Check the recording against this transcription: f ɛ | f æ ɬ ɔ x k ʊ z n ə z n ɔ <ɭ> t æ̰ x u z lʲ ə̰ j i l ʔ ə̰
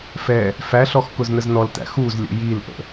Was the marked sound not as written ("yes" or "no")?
yes